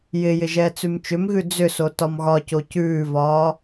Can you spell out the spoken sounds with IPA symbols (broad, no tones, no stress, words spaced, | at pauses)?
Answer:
jɪjɪ ʒɛːt͡sʉmt͡ʃʏmɣʉ d͡zʏso tɒmɣɒco cʉːvɒː